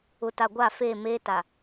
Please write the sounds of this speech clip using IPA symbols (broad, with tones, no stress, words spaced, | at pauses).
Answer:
ʊ˨ta˨ ɡʷa˦˨fe˦˨meː˦ta˨